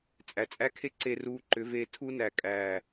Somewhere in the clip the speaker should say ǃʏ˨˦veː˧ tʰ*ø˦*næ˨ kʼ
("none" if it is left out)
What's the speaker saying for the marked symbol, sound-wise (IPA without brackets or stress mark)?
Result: u˦